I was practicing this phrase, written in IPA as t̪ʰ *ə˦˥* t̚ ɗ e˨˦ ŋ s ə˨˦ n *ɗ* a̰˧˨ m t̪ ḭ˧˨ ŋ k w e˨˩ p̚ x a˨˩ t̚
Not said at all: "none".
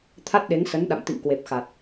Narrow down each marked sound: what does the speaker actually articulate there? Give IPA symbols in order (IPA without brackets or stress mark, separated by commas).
a˦˥, ɗ